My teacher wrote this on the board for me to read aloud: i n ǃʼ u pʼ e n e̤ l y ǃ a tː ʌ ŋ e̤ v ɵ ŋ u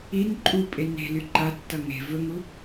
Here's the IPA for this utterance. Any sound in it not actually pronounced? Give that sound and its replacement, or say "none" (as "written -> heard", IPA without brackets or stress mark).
none